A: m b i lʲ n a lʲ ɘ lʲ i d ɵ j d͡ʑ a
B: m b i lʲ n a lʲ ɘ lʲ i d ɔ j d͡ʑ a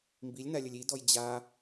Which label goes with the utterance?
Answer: B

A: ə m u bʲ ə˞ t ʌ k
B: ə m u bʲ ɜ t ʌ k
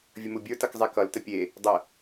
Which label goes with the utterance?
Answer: A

